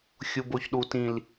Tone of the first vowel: low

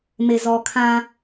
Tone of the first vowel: low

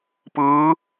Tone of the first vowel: rising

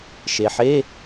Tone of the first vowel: low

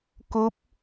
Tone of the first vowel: rising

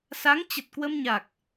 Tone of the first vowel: rising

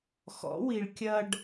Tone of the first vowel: rising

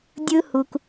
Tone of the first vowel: high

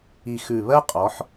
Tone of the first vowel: low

